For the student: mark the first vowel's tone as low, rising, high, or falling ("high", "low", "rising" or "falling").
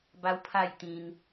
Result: high